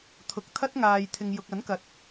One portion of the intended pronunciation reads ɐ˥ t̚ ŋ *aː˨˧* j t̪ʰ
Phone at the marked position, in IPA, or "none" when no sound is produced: aː˨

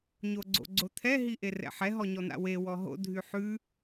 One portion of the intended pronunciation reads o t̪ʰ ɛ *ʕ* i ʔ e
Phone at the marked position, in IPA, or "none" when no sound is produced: ɦ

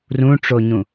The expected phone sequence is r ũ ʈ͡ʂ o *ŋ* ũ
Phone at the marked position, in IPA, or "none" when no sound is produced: ɲ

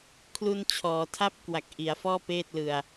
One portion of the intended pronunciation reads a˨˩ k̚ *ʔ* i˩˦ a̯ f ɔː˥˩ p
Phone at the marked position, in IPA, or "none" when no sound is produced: ʔ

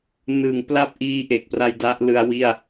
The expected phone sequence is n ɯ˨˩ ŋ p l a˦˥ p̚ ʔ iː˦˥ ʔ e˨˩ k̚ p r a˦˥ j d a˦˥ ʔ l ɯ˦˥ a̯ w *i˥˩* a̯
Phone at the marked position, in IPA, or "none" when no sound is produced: i˥˩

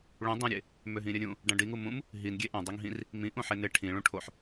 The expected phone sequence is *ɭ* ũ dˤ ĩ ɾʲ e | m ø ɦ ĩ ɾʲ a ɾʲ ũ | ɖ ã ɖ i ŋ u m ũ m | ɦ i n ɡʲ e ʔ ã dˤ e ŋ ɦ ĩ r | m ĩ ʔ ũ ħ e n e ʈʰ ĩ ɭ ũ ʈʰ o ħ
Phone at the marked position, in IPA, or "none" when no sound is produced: ɭ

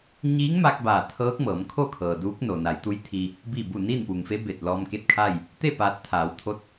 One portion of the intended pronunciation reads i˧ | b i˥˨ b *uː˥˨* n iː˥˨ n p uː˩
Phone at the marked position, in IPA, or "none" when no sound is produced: u˥˨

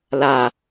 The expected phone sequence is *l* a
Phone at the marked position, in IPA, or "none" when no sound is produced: l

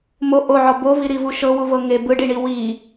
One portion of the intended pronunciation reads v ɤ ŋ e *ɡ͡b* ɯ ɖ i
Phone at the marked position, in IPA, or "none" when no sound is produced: b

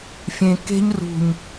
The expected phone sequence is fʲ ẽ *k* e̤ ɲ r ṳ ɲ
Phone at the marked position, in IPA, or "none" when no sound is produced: k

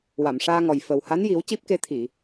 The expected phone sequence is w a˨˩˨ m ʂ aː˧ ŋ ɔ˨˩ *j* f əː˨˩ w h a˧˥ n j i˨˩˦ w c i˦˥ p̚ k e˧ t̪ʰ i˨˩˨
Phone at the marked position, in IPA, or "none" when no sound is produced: j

